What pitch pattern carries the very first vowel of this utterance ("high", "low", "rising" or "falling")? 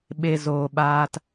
high